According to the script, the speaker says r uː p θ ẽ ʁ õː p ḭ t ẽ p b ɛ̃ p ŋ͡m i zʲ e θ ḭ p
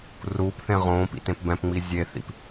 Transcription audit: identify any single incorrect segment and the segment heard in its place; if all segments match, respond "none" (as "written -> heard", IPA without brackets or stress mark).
none